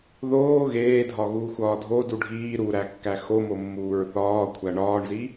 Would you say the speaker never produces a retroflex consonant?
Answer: no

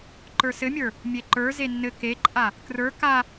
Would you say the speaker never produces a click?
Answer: no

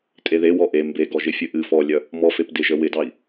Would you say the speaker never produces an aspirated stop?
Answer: yes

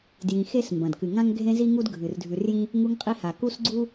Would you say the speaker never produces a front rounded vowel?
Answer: yes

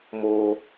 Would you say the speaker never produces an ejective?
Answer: yes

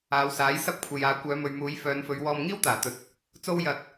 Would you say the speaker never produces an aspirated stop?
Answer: no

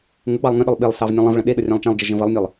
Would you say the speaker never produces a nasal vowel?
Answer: no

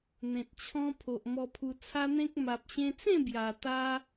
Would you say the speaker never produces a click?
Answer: yes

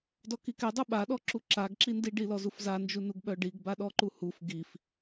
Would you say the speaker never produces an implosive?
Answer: no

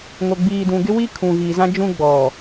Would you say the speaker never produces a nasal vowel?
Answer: no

